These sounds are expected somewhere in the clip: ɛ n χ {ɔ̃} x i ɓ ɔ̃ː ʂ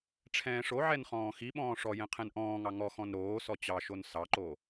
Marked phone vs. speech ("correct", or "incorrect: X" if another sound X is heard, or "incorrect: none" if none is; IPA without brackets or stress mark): incorrect: ɔ̃ː